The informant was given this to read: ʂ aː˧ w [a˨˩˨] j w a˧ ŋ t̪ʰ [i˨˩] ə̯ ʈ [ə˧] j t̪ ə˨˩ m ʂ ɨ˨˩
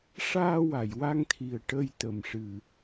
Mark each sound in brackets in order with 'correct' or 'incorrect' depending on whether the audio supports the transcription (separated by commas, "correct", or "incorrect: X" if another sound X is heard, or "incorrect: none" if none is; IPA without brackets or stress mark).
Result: correct, correct, correct